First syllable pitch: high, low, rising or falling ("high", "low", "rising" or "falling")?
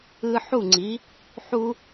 high